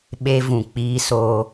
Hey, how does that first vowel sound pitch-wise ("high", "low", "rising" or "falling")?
high